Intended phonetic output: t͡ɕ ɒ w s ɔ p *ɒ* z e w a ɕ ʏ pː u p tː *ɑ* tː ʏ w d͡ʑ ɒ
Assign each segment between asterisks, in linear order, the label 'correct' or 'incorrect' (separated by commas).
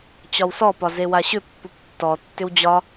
correct, incorrect